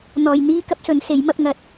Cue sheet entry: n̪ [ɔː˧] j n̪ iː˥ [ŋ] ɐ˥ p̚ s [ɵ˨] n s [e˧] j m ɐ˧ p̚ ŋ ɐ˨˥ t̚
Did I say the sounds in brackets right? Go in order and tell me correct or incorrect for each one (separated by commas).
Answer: incorrect, incorrect, incorrect, incorrect